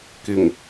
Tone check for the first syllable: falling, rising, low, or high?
low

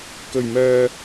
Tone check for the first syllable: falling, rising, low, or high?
low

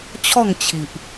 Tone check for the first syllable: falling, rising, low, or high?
falling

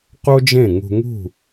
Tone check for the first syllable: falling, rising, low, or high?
high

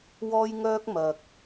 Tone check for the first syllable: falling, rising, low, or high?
high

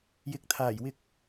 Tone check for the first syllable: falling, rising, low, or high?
rising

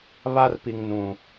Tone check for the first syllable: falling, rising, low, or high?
high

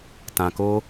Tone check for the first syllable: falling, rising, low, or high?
low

